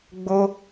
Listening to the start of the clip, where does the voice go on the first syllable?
high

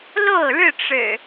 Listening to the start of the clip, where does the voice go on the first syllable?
falling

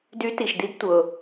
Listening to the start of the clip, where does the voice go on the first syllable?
rising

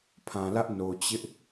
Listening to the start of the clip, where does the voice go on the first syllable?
low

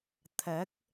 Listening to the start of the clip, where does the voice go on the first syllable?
rising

